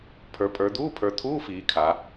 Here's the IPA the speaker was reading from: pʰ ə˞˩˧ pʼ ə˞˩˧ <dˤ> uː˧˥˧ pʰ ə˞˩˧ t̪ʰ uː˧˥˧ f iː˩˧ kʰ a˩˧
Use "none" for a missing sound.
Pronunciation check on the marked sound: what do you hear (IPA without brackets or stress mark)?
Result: d̪